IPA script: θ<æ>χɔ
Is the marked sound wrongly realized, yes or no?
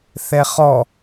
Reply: yes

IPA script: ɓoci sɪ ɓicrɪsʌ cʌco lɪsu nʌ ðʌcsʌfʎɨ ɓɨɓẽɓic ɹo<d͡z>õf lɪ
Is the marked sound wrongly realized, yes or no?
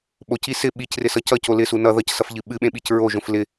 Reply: yes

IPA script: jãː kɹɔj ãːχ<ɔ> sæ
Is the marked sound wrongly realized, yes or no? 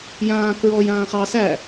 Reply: yes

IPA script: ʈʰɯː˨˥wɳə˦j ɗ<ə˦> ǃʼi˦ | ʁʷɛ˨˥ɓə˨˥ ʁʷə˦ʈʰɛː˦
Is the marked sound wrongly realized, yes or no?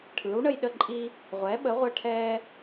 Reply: no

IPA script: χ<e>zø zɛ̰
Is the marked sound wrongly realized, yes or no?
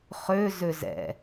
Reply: yes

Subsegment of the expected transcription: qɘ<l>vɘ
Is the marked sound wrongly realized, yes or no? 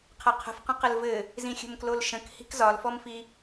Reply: no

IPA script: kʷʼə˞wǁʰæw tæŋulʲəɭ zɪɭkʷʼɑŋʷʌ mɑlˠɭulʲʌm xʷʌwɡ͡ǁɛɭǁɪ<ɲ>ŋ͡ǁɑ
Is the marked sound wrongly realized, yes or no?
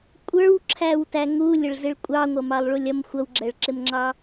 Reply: yes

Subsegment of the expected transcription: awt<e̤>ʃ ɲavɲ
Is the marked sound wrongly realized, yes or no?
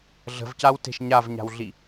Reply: no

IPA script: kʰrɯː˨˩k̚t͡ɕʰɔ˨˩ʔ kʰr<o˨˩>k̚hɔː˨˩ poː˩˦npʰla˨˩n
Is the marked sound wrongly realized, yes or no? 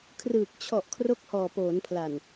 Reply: yes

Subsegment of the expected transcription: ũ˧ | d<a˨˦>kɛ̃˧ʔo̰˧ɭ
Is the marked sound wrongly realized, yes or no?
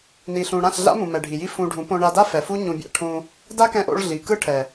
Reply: yes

